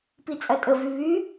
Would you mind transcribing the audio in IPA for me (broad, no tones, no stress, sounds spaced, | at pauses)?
p i t͡sʼ ɐ tʼ ə v y β y